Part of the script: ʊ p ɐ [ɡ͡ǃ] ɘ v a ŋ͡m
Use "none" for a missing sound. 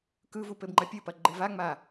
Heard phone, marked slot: ɡ͡ǃ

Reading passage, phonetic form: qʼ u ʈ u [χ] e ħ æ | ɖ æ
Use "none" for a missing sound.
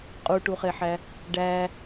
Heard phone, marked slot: χ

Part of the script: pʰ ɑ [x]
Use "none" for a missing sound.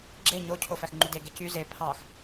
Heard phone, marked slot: x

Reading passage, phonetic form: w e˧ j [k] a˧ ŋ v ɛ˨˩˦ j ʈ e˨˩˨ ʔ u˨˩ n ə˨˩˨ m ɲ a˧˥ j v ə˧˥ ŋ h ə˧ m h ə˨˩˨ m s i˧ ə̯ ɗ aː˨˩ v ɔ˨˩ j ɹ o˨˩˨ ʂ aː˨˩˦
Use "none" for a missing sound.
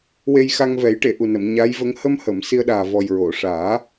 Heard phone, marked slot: x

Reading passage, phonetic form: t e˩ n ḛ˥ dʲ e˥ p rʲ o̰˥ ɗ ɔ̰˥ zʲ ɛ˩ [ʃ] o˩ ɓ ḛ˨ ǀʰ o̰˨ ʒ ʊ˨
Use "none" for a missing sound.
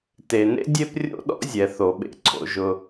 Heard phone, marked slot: θ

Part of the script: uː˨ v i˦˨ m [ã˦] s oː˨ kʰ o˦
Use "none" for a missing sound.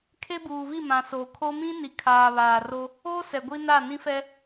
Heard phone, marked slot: ã˨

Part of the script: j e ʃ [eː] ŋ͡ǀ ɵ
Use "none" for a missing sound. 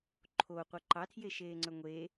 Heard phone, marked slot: eː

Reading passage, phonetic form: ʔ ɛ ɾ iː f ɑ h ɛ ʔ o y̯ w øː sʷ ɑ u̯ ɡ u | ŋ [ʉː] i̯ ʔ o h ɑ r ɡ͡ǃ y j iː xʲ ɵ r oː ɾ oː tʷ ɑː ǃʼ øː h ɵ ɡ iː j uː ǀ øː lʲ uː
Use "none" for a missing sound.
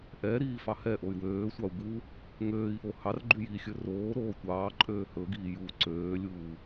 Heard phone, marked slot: øː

